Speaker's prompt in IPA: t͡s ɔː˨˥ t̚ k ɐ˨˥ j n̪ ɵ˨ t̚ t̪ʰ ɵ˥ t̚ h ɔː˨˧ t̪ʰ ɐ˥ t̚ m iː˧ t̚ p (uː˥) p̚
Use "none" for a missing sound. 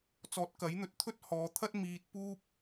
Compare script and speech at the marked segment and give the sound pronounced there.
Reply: uː˥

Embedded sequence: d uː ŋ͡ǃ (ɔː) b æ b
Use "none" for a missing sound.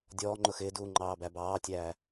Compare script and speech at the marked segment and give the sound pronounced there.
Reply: ɑː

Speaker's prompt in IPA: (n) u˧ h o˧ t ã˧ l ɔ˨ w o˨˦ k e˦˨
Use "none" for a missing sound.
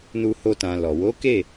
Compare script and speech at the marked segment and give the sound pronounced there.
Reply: n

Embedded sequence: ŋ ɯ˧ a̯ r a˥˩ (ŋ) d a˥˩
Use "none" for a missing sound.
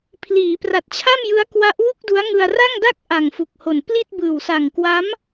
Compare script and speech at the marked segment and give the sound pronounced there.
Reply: ŋ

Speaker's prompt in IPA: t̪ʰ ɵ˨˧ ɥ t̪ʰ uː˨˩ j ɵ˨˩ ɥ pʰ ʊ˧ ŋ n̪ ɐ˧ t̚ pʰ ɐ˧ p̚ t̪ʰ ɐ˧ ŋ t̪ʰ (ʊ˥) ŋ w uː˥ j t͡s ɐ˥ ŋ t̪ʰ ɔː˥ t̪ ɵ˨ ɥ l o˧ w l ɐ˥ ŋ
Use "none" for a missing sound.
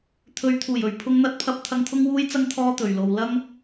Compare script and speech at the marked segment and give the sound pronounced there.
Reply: ʊ˥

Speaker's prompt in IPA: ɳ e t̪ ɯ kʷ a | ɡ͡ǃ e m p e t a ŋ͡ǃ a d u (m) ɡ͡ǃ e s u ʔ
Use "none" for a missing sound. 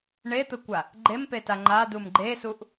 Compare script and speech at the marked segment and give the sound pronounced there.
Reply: m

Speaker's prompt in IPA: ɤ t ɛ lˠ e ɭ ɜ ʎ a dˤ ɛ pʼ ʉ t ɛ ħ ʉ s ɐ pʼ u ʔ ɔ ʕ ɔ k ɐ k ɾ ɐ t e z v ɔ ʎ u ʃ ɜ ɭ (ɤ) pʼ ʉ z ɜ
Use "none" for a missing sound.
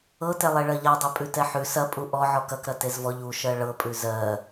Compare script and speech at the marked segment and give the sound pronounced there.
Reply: ɤ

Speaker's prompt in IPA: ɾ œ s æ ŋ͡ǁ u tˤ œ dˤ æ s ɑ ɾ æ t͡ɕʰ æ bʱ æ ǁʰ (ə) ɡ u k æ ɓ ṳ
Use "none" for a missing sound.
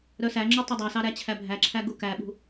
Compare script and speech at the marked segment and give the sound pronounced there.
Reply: æ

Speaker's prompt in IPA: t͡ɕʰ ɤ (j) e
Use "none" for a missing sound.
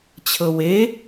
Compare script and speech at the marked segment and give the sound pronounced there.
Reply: w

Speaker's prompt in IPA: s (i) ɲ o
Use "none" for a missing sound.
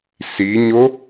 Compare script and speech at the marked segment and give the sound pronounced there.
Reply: i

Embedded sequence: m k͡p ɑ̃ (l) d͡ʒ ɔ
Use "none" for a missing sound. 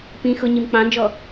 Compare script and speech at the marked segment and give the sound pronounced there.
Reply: n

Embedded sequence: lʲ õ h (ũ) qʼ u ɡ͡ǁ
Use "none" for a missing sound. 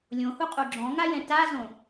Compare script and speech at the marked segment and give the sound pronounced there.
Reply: u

